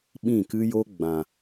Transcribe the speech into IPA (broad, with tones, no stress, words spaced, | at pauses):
ɓĩ˦˨kɨ˦jo˦ ɡ͡bã˨